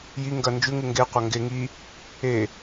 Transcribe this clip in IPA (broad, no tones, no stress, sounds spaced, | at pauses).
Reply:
j i ŋ ɡ ɐ n d͡ʒ ʉ ŋ ʉ ŋ ɡ e qʷ ɐ ŋ ɡ e ŋ i | e